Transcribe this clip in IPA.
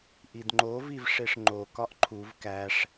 ʔ i d ŋ͡ǃ o v i v ʂ e ʂ ŋ͡ǃ o k ɒ ʔ ǃʰ u v k æ ʂ

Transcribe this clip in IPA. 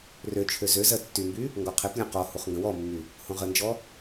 r ø t͡ʃʰ ø z ø z ɜ tː y m b y | ŋ ɡ ɔ qʰ e p lʲ õ q ɔ h u χ ŋ ɡ ə̃ w ɔ mː y | h õ ʁ ə n d͡ʒ ɔ

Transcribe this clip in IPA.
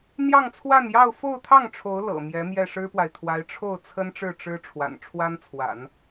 n̪ j ɑ˥˧ ŋ t͡sʰ w a˥˧ n j ɑ˥˧ ʊ̯ f o˥˧ ʊ̯ t̪ʰ ɑ˥˩ ŋ ʈ͡ʂʰ o˧˥ ʊ̯ l ɤ̰˨˩ m j ɛ˧˥ m j ɛ˥˩ ʂ ɻ̩˥ p w a˨ ɪ̯ t̪ʰ w a˧˥ ɪ̯ ʈ͡ʂʰ o˥˩ ʊ̯ t͡sʰ ə˥ n ʈ͡ʂ ɻ̩˥˩ ʈ͡ʂ ɻ̩˥ ʈ͡ʂʰ w a̰˨˩ n ʈ͡ʂʰ w a˥ n t͡sʰ w a̰˨˩˦ n

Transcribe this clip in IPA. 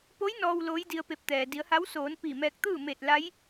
p o˧˥ j n ɔː˧ w l oː˧˥ j d i˧ ə̯ p e˧ p̚ t̪ ɛː˩ d i˩˧ ə̯ h a˧˥ w s oː˩˧ n p i˧˩ m ɛː˧ k̚ t̪ ɯː˥˨ m e˧˩ t̚ l a˧˥ j

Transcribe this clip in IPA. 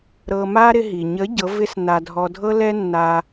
ɾ ɤ˧ m a˥ ɾ ɪ˧ ɦ i˩ ɲ ə˨˥ ɟ ɤ˨˥ v ɪ˥ s n a˧ dʱ ɔ˧ dʱ ɤ˥ l ɛ˥ nː a˧

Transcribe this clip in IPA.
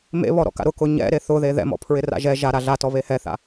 m ḛ β ɔ ɾ ɔ̰ k a̰ ɾ ʊ k ʊ ɲ ɛ̰ ɾ e θ ʊ ð e ð ɛ̰ m ɔ̰ pʰ ɹ ɪ r a̰ ʒ ɛ ʒ a ɾ a ɮ a t ɔ β e h ɛ θ a̰

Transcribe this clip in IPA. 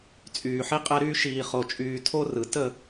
t͡sʼ yː˨ ħ i˦ qʼ ɛ˦ ɾ yː˦ ʃ iː˨ χ o˨ t͡ʃʼ yː˨ tʰ o˦ r ɯ˨ t ə˦˨

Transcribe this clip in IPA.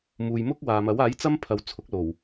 m uː˨ j m ʊ˥ k̚ w aː˨ m ɐ˨˥ w aː˨˥ j t͡s ɐ˥ m pʰ ɐ˨ w t͡sʰ ʊ˨˥ k̚ l o˨˩ w

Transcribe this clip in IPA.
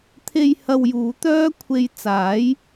t̪ʰ e˧ j h ɐ˧ w j uː˨˥ t̪ œː˥ kʷʰ e˧ j t͡s aː˨˥ j

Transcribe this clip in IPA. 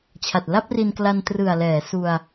t͡ɕʰ a˨˩ t̚ l a˥˩ p̚ r i˧ n k l a˧ n t r ɯ˨˩ a̯ l ɛː˩˦ s u˧ a̯

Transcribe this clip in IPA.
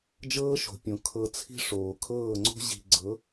d͡ʒ ɤː˦ ʃ o̤˨ pʲ õ˨ kʰ ɤ˨ t͡sʰ i̤˦ ʂ oː˨ kʰ ɤː˦˨ ŋ͡ǀ o̤˦ ʑ i̤˧ ɡ͡ǀ ɤ˨˦

